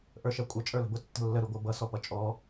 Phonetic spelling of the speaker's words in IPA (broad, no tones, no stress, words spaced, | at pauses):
ʔə˞ʃɛkʷʼə t͡ʃʼə˞lə̤bʊ tːə̤lːə ɾuɡʷə˞bʌ sɔpʌt͡ʃʼɔ